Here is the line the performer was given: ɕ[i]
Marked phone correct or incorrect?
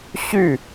incorrect